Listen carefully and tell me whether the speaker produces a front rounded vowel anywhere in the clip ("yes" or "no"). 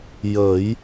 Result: no